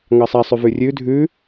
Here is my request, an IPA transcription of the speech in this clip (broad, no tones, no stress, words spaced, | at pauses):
ŋɑsˤasˤʉv ʉrʲʉ dʱʉ